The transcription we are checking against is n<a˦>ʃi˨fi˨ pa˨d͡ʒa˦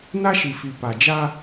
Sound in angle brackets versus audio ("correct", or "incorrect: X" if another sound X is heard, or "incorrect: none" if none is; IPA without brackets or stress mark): correct